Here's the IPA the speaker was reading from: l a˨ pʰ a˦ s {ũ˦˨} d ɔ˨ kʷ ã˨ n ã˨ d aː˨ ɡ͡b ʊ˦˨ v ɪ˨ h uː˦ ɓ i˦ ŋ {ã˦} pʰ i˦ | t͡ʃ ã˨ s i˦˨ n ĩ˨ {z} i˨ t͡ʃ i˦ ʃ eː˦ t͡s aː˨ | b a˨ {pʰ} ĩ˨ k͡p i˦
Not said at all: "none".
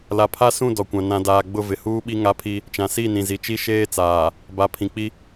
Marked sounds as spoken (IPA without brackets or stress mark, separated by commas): ũ˦˨, a˦, z, pʰ